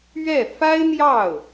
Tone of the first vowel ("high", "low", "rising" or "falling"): falling